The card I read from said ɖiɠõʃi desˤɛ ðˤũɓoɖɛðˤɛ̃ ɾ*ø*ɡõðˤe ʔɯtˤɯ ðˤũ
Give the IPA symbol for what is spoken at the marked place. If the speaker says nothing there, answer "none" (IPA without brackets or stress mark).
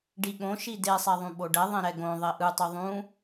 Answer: ɛ